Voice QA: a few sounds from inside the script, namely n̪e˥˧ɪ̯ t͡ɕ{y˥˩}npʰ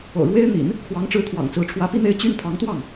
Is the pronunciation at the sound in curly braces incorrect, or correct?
correct